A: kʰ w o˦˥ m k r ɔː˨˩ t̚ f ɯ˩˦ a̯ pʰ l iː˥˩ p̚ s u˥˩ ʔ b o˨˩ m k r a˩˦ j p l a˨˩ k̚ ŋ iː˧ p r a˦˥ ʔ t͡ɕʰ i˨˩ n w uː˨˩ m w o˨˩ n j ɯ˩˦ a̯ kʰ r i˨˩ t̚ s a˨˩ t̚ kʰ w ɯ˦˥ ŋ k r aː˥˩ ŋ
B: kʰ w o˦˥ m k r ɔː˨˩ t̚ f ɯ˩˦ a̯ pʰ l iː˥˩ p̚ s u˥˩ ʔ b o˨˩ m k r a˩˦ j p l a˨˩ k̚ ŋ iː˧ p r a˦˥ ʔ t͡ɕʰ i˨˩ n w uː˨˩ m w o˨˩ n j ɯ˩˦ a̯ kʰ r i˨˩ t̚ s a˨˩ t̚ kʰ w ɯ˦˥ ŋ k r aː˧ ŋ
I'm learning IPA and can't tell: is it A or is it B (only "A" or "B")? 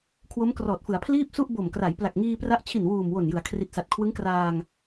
B